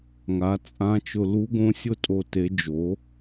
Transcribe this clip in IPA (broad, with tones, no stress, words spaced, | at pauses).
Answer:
ŋa˩˥t͡sʼã˧˥t͡ʃʊ˧ lu˧˥ɡõ˧˥sʲʊ˥˨ tʼo˥˨te˧˥ d͡ʒo˩˥